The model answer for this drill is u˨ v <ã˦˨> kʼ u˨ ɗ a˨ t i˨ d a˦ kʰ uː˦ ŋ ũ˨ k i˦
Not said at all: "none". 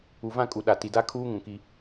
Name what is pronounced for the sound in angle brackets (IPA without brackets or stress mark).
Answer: ã˦˨